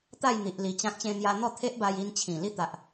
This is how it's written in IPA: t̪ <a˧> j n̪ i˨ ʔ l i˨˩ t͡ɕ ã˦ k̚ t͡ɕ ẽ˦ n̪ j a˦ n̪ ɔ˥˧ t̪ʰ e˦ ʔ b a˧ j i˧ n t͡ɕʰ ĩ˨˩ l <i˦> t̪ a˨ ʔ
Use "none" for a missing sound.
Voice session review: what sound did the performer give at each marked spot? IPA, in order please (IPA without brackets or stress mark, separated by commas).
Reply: a˥˧, i˦